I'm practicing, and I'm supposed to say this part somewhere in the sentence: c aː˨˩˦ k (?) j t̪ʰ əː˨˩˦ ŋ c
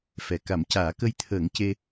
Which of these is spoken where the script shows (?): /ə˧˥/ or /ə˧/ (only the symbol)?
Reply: ə˧